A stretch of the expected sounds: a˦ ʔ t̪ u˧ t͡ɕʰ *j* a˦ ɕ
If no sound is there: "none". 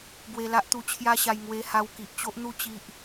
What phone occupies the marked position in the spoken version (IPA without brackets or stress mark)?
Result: j